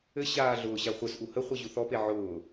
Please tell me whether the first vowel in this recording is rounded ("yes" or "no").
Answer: no